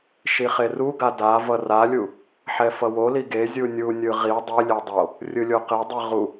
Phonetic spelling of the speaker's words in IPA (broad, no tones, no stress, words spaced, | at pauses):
ʃiχeruɡa da vʌralʲu | ħɛfʌwoli ɡe zʲunʲunʲɯ ʁi dˤilʲe dˤo | rʲɯlʲoqedˤi ʁu